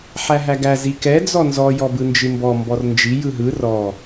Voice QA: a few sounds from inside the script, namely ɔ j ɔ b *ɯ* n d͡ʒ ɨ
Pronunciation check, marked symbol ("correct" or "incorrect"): correct